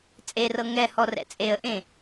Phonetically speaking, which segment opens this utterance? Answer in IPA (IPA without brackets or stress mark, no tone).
t͡sʼ